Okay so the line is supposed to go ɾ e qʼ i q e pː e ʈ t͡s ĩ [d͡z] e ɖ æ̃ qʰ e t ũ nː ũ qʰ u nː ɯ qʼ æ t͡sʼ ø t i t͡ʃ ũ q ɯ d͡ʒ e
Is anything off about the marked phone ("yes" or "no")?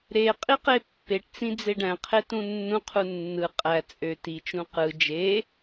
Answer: no